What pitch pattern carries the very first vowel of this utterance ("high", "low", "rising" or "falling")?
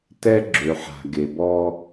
high